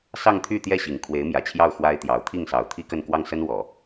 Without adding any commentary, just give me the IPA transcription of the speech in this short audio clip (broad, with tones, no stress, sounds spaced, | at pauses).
s ɑ˥˧ ŋ t̪ʰ y˥˧ t̪ j ɛ˥˩ ɕ i˨˩ ŋ kʰ w e˧˥ ɪ̯ m j ä˨˩ t͡ɕʰ j ɑ˥˩ ʊ̯ x w a˥ ɪ̯ t̪ j ɑ˧˥ ʊ̯ t̪ʰ i˥˩ ŋ s ɑ˨˩ ʊ̯ t̪ʰ i˥ k ə˥˧ n k w ɑ˥˩ ŋ s ə˥ n w ɔ˨˩˦